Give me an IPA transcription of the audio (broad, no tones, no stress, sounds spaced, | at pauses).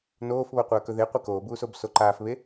n oː f β o qʷ ɐː k ɵ ð e qʷ e k oː b uː s o b s o ǃ aː f β e